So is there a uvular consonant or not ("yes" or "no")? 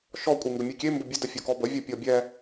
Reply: no